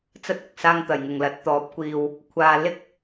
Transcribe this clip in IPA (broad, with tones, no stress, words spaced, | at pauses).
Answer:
t͡sɐ˥t̚ʊ˨k̚ saː˧ŋt̪ɐ˨˩jŋʊ˨˩ŋlɐ˨˥t̚ t̪ɔː˨˥p̚kʷiː˨w | kʷʰaː˨lɪ˥k̚